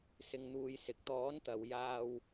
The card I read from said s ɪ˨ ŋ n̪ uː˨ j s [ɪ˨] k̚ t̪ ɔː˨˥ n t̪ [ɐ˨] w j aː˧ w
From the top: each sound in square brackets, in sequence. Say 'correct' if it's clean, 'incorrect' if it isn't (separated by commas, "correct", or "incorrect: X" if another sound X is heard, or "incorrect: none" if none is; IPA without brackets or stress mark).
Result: incorrect: ɪ˨˥, correct